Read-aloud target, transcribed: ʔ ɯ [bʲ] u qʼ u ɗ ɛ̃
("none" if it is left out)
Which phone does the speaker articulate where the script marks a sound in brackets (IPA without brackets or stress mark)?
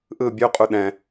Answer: bʲ